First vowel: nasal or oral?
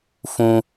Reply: nasal